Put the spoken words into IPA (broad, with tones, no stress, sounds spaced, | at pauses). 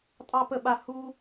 tʼ ɑ˧ p ə˨ ɓ a˧ h u˦